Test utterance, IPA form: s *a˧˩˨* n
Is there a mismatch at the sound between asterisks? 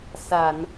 no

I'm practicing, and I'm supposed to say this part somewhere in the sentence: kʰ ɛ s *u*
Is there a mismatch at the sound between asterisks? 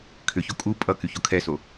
yes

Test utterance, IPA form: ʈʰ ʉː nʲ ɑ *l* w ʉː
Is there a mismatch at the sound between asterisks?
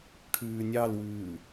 no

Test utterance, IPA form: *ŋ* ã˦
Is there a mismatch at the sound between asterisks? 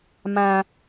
yes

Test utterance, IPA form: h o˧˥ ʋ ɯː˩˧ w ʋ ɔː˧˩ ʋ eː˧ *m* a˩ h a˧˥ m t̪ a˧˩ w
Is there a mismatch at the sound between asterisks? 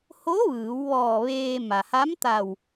no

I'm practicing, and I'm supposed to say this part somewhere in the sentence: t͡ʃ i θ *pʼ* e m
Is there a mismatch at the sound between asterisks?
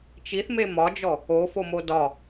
yes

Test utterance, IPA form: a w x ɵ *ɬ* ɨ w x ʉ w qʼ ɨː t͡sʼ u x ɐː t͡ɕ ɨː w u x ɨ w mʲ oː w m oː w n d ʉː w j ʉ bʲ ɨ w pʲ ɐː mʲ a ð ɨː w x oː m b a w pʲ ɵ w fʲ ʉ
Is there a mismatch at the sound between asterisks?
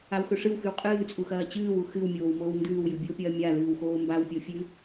yes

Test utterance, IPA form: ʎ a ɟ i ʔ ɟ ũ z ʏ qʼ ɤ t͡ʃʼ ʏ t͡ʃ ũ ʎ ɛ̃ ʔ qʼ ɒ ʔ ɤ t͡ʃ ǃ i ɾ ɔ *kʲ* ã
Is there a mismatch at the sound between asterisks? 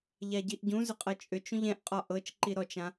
yes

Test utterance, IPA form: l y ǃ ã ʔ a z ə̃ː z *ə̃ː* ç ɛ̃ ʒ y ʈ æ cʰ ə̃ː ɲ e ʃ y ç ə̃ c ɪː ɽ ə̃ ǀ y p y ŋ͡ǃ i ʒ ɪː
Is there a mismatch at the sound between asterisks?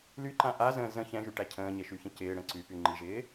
yes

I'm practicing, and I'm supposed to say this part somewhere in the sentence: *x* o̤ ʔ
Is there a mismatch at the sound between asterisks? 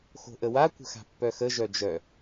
no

